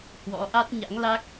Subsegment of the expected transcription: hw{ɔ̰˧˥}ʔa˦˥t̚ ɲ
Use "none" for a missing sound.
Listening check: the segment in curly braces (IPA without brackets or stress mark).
ɔ̰˧˥